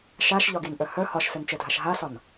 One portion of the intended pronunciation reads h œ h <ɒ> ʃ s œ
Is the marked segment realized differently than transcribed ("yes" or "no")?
no